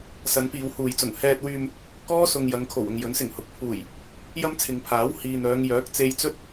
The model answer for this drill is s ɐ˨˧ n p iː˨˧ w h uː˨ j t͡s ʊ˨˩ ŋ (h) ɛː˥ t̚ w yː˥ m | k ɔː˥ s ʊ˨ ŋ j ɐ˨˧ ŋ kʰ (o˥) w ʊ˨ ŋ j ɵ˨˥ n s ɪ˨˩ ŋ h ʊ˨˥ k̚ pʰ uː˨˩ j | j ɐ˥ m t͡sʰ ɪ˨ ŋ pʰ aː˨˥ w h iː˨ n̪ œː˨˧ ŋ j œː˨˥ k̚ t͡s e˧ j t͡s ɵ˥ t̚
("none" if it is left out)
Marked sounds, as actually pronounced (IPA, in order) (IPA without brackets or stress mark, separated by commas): h, o˨˩